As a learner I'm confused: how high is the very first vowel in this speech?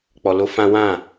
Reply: mid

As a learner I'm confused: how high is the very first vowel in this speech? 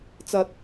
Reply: low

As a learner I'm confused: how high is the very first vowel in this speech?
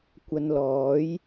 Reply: low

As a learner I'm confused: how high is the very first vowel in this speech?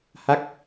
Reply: low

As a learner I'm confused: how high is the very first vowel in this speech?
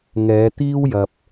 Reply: mid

